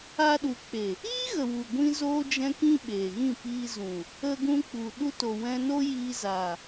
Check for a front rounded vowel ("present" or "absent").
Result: absent